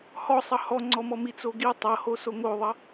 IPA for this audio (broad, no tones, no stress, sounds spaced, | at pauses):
h ɔ sˤ ʌ h ɔ ŋ͡ǀ ɔ m ɔ m i t͡s o ɡ i tˤ ʌ h o s o ŋ o ðˤ ʌ